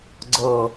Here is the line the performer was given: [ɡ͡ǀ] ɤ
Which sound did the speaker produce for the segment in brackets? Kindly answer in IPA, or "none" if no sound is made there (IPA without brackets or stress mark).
ɡ͡ǀ